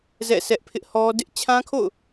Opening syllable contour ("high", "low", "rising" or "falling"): falling